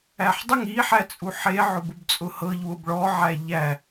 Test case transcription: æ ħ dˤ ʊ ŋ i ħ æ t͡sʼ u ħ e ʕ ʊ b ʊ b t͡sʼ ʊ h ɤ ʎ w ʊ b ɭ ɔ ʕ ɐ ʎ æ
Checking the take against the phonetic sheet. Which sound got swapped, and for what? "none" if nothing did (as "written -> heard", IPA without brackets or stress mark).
ɐ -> æ